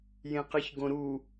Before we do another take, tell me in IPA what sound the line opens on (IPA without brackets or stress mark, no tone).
j